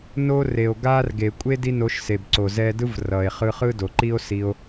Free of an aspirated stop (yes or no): yes